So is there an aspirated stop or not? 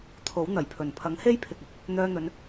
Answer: yes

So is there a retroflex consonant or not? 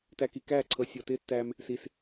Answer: no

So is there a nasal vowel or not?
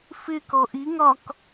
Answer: no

